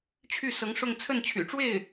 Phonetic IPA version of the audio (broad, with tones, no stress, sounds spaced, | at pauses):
t͡ɕʰ y˥˩ s ɤ˧˥ ŋ ʂ ʊ˥˧ ŋ t͡sʰ ə˥˩ n t͡ɕʰ y̰˨˩ ʈ͡ʂ w e˥˩ ɪ̯